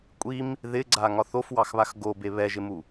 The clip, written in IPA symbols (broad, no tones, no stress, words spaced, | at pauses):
kʷʼim | ðɪɡ͡ǀaŋɒθ ofwɑxβax ɡobe βɛʒɪmu